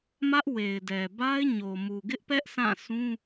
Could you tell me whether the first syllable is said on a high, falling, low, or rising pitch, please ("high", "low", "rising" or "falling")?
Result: high